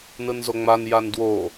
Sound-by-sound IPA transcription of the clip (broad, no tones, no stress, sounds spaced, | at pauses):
n ɯ n z o ŋ͡m a n j a n d w o